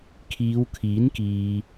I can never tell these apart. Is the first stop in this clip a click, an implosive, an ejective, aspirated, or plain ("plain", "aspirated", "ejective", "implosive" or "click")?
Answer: aspirated